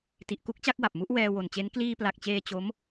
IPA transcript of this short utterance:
ti˨˩ʔku˥˩k̚t͡ɕa˥˩k̚wa˨˩p̚ mu˦˥ʔwɛː˧wo˨˩nt͡ɕe˦˥n kliː˧pla˨˩k̚t͡ɕeː˧ t͡ɕo˦˥m

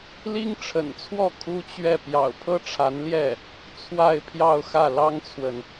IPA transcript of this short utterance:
li˥ŋʈ͡ʂʰə̰˨˩nt͡sʰwɔ˥˩ kʰu˥t͡ɕɥɛ˥˩ pjɑ̰˨˩ʊ̯pʰɤ˥ʈ͡ʂʰa˧˥nljɛ˥˩ | t͡sʰwa˥˧ɪ̯pʰjɑ˥˧ʊ̯xä˥˩ lɑ˥ŋt͡sʰwə˨n

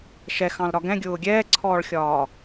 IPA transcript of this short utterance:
ʃɛxɑ̃lɾɒ ɡɛ̃ɡʲʊː ɡʲɛːǀʰɔːɭxʲɒː

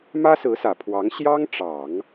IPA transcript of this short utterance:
mä˥sɹ̩˧˥sä˨˩ pʰwɑ˧˥ŋ ɕjɑ˥ŋʈ͡ʂɑ˨˩˦ŋ

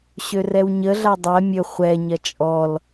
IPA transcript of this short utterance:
ɕørɛwɲəɮa dˤɛ mʲɵ χʷɛɲɐ t͡ʃʼɔl

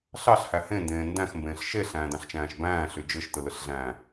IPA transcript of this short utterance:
ɬɑɬhæ hẽndẽː ndæ̃xmbẽːɬ ʃeɬæ̃ːdɑ̃ɬt͡ʃæ̃ːʃ bæ̃ːɬy d͡ʒɯʃtɯlɯɬɮæ̃ː

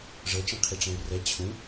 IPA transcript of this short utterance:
ʐɤ t͡ʃĩqʰiʈ͡ʂɛ̃y̯rɛ t͡ɕʰũ

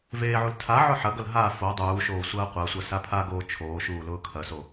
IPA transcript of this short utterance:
veːʕul tʰa ʕʊħɐɡɐl ɦa fo dˤuːʃoː sʷɐːqʷasʷɐ sapʰaɡoː t͡ʃʰoːʃuː lʊːkʰɐso

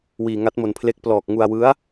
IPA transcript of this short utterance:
wiː˧ŋa˦˥t̚mo˧npʰle˦˥k̚ plɔː˨˩k̚ ŋu˧a̯wɯ˦˥a̯

